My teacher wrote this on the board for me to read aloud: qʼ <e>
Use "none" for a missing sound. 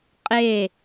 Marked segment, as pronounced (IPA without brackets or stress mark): e